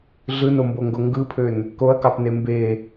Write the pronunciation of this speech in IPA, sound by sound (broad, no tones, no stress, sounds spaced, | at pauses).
ɮ ɯ n o m b o ŋ ɡ o ŋ ɡ ɯ pʰ ø n | k o ɐ̯ k ɑ p n e m b e